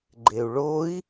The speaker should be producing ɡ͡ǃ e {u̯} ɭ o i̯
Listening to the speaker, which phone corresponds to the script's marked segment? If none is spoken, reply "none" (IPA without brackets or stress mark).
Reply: u̯